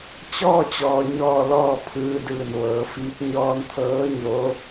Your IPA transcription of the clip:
t͡ɕ ɔː˥˨ t͡ɕ ɔː˩ ɲ ɔː˧˩ l ɔː˧˩ pʰ ɯː˧ d ɯː˧˩ n ʋ ɤː˩˧ f iː˧˥ k̚ ɲ ɔː˧ n t̪ʰ ɤː˧˥ ɲ oː˧˥

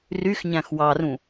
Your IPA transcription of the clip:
r y x ɲ æ̃ x w ɑ r ũ

